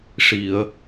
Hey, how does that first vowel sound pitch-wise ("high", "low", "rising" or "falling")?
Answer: low